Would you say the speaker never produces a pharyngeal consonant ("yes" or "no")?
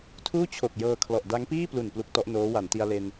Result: yes